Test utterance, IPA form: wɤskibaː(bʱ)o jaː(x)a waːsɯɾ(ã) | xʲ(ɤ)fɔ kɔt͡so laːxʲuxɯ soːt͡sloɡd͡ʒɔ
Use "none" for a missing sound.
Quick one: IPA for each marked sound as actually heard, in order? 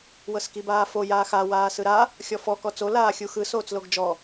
f, x, a, ɔ

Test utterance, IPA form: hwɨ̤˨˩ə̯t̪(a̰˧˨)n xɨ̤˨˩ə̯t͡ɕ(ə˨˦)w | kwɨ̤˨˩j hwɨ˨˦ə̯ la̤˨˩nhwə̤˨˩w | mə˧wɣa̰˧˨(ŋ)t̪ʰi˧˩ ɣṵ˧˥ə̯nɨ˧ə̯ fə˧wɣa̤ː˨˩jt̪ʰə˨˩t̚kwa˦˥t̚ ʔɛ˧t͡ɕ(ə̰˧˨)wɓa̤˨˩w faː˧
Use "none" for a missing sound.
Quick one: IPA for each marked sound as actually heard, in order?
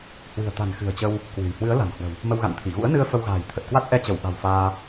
a̤˨˩, ə˧, n, ə˧˩

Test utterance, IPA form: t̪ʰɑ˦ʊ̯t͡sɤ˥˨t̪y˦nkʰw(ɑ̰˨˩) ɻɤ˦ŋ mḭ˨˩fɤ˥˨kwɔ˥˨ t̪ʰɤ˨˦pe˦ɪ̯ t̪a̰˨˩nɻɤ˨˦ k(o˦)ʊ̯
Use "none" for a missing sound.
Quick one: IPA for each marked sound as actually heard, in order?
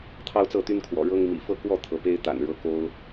ɔ̰˨˩, o˦

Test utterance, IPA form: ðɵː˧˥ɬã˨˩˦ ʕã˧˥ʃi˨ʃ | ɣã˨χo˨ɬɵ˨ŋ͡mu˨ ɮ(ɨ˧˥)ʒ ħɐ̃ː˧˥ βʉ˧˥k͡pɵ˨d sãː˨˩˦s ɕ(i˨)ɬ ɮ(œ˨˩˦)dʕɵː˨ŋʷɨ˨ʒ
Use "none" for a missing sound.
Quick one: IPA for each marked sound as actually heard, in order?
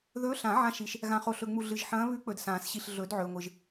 ɨ˨, i˨, ɵ˨˩˦

